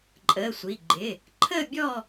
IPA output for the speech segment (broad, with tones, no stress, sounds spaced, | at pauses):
ǃʼ əː˩˧˩ sʷ i˩˧˩ ɡ͡ǃ ɪ˩˧˩ | ǃʰ ə˦˨ bʲ ɔ˦˨